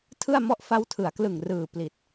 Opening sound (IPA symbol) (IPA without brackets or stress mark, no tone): tʰ